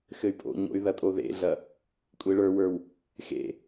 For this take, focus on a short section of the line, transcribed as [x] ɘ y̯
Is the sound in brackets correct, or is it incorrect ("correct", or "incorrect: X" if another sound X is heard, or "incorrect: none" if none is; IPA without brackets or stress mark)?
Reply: correct